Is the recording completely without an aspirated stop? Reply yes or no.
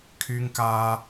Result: no